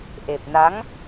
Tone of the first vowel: low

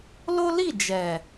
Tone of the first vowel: high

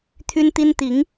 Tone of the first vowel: high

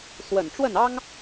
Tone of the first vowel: low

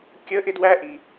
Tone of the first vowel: high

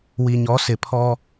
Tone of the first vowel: low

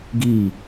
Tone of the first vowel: falling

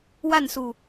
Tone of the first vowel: falling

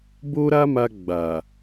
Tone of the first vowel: high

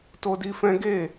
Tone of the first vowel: high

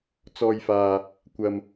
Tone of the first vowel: low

